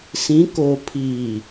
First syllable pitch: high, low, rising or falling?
rising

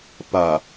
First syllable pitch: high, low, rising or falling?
low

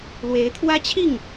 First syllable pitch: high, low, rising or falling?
rising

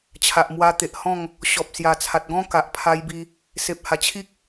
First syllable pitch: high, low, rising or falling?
low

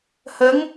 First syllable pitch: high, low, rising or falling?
rising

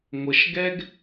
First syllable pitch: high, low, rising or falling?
low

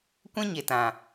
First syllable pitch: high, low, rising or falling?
high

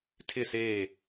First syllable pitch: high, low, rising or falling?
falling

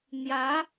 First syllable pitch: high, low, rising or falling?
rising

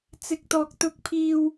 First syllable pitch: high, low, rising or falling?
high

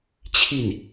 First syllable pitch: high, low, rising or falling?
falling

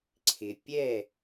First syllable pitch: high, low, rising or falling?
low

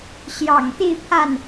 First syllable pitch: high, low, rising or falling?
low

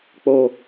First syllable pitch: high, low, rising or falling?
low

